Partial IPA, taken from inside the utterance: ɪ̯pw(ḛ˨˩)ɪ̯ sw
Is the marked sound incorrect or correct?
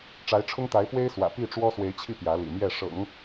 incorrect